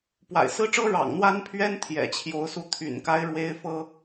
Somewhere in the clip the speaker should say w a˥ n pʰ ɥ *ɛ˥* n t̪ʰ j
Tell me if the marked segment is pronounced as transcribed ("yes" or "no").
yes